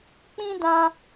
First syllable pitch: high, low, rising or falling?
high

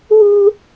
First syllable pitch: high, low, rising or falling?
high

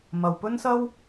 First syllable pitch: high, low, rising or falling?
low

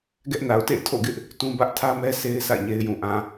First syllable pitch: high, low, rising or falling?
high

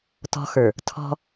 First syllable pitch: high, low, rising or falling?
high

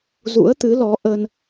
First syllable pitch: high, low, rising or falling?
rising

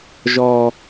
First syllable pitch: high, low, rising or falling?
low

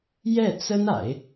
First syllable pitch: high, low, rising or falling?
falling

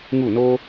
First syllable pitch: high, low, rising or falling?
falling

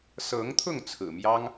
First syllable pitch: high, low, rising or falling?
rising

